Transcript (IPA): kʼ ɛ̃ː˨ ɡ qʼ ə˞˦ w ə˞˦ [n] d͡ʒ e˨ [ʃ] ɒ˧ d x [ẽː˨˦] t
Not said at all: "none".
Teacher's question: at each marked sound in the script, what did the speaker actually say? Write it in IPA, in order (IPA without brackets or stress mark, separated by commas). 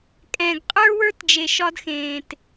t, ʃ, ẽː˨